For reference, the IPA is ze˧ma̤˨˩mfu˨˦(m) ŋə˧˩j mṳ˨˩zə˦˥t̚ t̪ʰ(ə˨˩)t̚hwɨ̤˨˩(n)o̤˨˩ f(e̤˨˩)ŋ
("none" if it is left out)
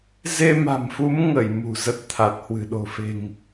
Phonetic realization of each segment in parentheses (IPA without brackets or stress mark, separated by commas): m, a˨˩, ɗ, e̤˨˩